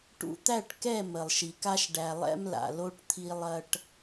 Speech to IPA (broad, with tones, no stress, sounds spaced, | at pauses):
ʈ ṵ˨ t̪ æ˦˨ ʈ k ɛ˦˨ m ə˨ lˠ ʃ i˨ k a˦ ʃ ɖ æ˨ lˠ ɛ̰˦ m l a̰˨ l o˦ ʈ t̪ʰ i˦ lˠ ɐ˦ ʈ